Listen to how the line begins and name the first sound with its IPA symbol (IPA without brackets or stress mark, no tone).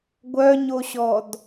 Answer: ɡʷ